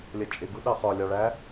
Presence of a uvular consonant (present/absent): present